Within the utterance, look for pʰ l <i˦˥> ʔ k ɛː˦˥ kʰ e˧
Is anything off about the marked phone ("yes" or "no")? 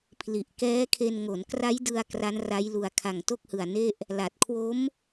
yes